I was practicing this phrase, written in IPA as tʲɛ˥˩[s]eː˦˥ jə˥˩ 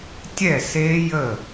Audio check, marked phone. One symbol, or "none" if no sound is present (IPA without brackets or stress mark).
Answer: s